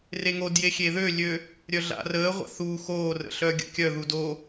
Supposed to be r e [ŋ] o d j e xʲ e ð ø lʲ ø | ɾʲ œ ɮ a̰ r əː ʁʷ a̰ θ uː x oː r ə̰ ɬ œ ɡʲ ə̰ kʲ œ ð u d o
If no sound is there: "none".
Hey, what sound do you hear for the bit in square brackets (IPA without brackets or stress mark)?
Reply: ŋ